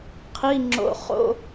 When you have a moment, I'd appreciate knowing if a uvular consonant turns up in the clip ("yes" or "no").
yes